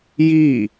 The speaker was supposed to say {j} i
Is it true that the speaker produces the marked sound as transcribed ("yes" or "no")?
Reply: yes